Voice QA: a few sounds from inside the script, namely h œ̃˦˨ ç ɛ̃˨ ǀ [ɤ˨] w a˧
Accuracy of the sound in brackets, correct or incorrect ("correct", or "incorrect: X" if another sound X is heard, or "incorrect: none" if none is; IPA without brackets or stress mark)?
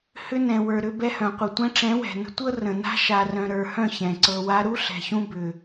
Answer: incorrect: ɤ˧